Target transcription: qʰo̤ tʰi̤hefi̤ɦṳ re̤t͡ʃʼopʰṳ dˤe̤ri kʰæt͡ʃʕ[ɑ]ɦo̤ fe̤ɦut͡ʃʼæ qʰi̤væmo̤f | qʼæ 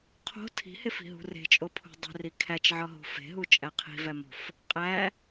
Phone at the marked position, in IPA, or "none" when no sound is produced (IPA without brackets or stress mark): ɒ